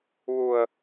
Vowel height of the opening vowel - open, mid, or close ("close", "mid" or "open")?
close